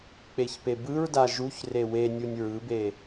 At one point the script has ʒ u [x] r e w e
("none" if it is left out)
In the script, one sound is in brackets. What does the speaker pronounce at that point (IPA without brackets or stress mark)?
ç